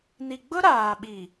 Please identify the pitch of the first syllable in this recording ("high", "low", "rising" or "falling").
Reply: low